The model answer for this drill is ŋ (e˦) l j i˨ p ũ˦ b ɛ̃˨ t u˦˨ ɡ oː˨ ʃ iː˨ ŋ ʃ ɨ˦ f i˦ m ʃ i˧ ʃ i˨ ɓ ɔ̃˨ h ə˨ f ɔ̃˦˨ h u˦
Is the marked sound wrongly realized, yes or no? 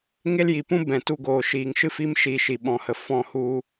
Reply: no